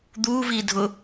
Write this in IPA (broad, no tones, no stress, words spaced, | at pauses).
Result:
d̪uː viːdʱʊ